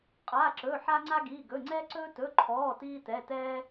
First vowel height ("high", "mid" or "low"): low